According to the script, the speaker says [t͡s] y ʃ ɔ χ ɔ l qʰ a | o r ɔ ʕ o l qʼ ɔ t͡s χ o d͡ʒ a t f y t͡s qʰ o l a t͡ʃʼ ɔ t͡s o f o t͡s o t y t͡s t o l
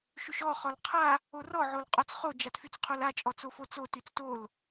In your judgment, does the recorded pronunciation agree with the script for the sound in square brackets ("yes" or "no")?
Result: no